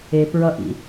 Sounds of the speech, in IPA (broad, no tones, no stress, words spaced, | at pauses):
epɹʌʔḭ